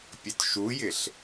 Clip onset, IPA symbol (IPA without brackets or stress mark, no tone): pʲ